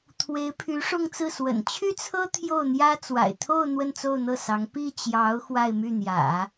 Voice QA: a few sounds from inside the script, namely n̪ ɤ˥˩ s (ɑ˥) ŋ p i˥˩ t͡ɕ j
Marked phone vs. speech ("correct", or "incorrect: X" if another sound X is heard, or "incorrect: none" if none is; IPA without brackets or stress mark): incorrect: ɑ˧˥